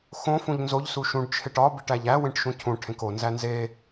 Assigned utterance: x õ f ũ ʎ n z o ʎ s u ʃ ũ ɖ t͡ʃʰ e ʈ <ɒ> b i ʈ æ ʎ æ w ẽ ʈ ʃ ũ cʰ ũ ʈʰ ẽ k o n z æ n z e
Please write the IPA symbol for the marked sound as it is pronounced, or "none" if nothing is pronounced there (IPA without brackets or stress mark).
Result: ɒ